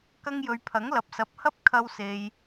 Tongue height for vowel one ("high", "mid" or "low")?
low